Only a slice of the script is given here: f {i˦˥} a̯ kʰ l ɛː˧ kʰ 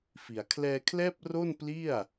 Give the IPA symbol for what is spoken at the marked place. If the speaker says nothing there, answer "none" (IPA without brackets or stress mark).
i˩˦